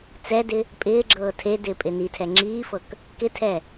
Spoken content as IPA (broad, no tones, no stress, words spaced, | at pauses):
t͡sɛdɪ | pʼɪːɡ͡ǁɤː tʰedɪː pʼɪnitʰɛ ŋ͡ǁiːfɤk | kɪtʰɛ